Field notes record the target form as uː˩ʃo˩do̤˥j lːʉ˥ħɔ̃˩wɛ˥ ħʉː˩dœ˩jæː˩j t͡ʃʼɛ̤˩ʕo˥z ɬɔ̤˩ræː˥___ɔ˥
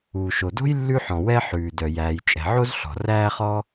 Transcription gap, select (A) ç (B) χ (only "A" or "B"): B